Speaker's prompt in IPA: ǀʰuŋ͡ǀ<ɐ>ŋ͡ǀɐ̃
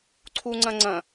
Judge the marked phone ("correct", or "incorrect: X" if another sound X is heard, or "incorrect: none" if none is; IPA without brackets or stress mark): incorrect: ɐ̃